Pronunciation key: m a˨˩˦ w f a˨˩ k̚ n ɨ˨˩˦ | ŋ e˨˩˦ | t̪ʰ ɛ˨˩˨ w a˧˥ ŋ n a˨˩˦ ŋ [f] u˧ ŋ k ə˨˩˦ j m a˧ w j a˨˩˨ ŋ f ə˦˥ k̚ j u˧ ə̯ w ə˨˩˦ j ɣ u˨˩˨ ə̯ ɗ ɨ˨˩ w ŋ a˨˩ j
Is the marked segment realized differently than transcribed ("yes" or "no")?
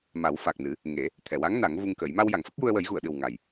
yes